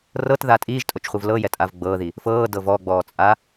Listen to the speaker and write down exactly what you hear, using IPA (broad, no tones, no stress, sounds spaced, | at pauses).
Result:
r ɤ t ð a tʼ iː ʒ tʼ o t͡ʃ χʷ ɯ v l ɤ j ɛ tʼ a v ɡ͡b ɤː ð i | f ɤː d ɤ v ɔ ɡ͡b ɔː t͡sʼ a